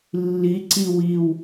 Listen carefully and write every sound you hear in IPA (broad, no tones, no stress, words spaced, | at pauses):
lːiǀi wiw